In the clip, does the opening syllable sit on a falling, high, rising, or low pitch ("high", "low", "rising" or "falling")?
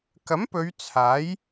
rising